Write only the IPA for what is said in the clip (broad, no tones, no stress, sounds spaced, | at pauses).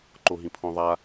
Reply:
ǃ o ɦ ĩ pʰ õ ðˤ a